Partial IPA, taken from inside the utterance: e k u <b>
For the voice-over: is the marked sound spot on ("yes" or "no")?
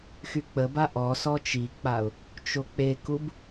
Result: yes